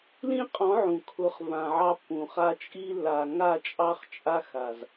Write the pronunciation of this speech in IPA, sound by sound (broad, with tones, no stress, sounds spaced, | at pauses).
l ĩ˦ qʼ ɔ̃˨˦ ʕ ũ˨ kʰ ʊ˨˦ χ v ã˨ ʕ ɑ˦ pː ũ˨ χ a˦ t͡ʃʼ i˦ lː a˨ ŋ a˦˨ t͡ʃʼ ɑ˦ χ t͡ʃʼ a˦ x a˨ z